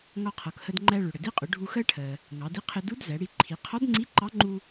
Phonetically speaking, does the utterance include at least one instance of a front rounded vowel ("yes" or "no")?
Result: no